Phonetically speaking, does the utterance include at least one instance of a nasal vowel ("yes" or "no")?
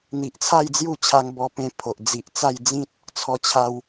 yes